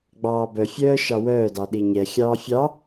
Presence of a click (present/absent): absent